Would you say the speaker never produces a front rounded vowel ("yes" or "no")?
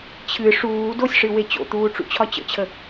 yes